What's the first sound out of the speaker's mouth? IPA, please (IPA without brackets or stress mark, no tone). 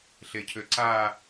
ɬ